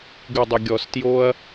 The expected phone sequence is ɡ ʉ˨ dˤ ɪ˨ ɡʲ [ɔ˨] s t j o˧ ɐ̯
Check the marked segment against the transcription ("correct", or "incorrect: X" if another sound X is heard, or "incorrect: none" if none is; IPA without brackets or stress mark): correct